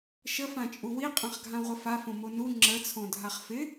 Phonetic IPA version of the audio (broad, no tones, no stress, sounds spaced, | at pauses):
ʃ ə f ã t͡ʃʼ u w i qʼ ã χ ɡʱ ã ʁʷ ə f a f õ m o n u ŋ͡ǁ ə t͡sʰ õ dʱ a χ f ɪ